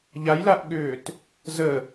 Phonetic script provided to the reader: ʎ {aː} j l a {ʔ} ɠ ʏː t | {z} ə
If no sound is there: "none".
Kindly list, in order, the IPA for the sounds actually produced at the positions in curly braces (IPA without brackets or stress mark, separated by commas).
a, ʔ, z